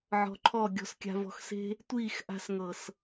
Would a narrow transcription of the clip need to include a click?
yes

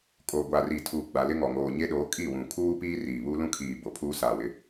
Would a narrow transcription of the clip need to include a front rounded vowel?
no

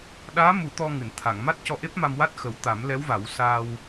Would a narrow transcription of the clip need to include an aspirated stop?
yes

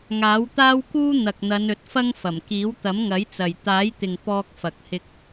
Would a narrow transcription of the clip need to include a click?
no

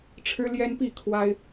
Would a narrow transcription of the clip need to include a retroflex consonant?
yes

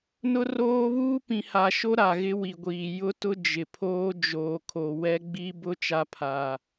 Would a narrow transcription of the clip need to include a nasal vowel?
yes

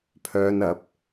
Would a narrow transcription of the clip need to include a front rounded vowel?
yes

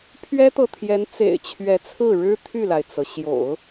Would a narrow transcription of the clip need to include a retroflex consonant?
yes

